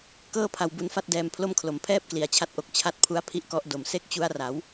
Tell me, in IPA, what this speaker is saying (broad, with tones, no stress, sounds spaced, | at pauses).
k ɤː˥˩ pʰ a˧ w b u˧ n f a˦˥ t̚ d ɛː˧ m pʰ l o˥˩ m kʰ l o˩˦ m pʰ ɛː˥˩ p̚ k l i˩˦ a̯ t͡ɕʰ a˦˥ t̚ ʔ o˨˩ k̚ t͡ɕʰ a˦˥ t̚ pʰ u˦˥ a̯ pʰ i˦˥ ʔ k ɔ˦˥ ʔ d o˨˩ m s e˥˩ k̚ t͡ɕ u˦˥ a̯ r a˩˦ w